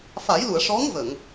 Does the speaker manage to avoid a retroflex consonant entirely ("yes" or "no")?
no